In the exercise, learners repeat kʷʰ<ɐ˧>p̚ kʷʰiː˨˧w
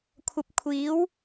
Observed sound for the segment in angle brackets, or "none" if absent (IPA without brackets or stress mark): ɐ˧